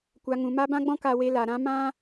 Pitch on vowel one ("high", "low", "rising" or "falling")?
low